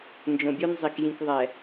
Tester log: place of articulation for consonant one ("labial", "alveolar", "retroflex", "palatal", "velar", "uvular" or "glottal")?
alveolar